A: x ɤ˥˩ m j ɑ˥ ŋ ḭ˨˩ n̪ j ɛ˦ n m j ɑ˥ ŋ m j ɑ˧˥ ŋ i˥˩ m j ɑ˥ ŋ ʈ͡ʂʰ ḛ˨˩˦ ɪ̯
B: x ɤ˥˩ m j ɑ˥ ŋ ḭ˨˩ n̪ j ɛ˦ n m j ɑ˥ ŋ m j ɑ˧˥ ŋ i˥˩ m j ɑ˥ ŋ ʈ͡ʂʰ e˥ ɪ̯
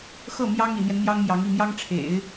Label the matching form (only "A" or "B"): A